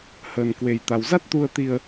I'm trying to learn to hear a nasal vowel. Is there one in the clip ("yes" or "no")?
no